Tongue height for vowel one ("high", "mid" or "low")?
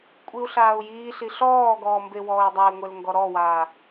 high